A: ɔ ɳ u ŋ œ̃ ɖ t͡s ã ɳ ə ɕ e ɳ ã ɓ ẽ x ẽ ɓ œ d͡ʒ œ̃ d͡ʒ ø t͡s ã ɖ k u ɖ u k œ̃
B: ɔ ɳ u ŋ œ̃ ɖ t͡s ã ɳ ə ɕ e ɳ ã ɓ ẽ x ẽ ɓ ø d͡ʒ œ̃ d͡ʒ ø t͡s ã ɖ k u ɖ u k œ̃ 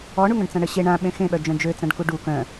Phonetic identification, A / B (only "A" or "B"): A